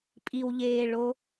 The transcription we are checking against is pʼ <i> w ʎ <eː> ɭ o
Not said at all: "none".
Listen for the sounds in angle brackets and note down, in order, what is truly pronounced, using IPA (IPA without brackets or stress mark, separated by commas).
i, eː